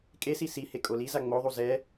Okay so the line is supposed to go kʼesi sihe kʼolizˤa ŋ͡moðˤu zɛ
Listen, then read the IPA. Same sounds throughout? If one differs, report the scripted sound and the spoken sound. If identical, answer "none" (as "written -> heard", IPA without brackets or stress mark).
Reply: zˤ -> z